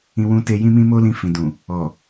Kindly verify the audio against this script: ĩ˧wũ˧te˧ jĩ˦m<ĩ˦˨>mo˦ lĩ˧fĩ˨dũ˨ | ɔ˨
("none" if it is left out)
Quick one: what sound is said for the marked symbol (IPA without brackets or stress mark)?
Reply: ĩ˦